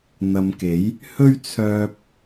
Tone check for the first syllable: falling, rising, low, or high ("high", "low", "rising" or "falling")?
low